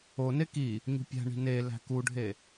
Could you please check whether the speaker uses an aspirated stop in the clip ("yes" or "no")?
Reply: no